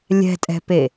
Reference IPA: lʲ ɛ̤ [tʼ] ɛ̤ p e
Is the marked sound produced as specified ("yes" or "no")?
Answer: yes